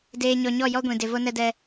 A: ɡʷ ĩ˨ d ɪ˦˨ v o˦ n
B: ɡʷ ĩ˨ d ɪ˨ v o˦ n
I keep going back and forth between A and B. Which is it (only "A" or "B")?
B